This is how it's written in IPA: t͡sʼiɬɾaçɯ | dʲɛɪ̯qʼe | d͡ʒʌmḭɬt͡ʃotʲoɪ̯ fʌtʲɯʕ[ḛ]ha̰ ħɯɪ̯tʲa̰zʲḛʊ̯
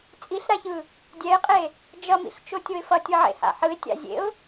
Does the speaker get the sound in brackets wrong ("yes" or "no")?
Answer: no